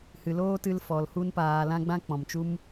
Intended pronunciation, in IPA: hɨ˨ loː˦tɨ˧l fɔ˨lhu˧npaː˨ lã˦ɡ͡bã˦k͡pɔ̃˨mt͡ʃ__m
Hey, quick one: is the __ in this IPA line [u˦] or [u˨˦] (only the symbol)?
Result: u˦